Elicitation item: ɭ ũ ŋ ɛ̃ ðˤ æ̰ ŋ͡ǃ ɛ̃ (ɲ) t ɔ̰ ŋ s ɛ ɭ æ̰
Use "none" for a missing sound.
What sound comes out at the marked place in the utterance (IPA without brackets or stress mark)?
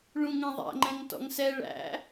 ŋ